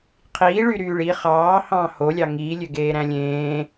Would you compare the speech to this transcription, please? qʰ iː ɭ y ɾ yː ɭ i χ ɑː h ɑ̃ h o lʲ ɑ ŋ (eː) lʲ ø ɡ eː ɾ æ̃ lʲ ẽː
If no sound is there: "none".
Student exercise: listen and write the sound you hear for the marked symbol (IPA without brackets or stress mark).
iː